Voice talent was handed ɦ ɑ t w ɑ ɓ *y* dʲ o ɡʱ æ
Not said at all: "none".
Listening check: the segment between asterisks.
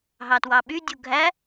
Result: y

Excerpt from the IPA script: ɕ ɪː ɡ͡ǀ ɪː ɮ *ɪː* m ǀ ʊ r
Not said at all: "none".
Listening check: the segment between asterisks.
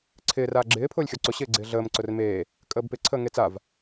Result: əː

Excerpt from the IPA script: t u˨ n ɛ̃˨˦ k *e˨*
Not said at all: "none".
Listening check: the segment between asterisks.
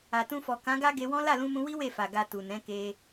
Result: e˧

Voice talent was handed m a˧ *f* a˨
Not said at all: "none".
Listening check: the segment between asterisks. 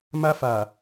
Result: f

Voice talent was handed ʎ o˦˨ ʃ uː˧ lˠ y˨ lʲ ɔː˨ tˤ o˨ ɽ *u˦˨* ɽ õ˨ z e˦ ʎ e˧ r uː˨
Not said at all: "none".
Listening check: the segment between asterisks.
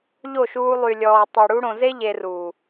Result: u˧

